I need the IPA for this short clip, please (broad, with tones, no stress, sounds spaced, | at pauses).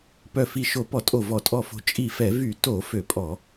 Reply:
p œ˧˩ f i˧˩ ʃ o˧˩˧ p ɔ˧˩˧ tʼ o˧˩ v ɔ˧˩˧ tʼ ɔ˧˩ f o̤˧˩ t͡ʃʼ i˧˩ f ɛ˧˩˧ v y˧˩˧ t o˧˩˧ f ø˧˩˧ pʼ ɔ˧˩˧